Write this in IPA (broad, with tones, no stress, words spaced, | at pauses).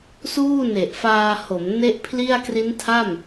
suː˥˩ne˨˩ʔfaː˧ho˩˦m ne˥˩ʔpʰli˥˩a̯ kri˦˥ntʰa˥˩m